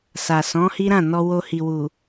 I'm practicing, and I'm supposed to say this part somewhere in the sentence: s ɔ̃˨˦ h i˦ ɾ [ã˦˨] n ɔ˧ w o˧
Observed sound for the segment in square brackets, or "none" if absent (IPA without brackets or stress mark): ã˦˨